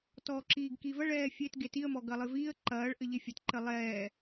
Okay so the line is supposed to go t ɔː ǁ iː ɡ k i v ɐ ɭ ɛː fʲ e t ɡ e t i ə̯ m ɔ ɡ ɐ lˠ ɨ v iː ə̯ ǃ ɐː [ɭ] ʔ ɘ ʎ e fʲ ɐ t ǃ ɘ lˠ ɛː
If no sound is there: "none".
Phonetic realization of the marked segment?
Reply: ɭ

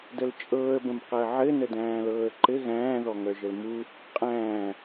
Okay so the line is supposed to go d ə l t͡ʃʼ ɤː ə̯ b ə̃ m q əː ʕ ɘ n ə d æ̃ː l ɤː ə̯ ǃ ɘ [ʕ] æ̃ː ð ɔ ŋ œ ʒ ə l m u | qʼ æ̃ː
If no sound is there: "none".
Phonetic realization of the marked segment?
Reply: ɣ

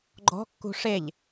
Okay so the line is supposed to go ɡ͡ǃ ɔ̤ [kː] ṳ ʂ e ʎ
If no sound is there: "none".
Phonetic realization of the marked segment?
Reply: kː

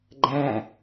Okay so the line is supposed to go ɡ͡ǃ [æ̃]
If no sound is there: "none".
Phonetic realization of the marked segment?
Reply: æ̃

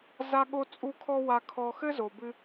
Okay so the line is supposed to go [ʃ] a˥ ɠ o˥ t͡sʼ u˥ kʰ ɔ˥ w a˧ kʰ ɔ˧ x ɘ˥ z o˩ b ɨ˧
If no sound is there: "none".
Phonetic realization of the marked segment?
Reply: z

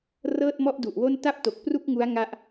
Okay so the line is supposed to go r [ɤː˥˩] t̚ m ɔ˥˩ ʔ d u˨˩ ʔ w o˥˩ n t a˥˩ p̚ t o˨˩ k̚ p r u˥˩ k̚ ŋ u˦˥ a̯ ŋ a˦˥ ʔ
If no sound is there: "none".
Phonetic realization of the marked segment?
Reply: ɤː˥˩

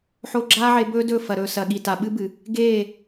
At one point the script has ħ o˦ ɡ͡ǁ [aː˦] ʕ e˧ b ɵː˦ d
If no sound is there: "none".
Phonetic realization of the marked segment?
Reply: aː˦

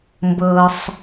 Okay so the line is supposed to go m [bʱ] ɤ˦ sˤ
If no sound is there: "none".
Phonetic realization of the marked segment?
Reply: b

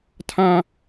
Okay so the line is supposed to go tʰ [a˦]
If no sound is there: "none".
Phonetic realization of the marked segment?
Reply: ã˦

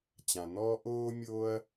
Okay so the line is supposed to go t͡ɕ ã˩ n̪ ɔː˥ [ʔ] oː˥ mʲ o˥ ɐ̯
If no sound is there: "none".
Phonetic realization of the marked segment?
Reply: ʔ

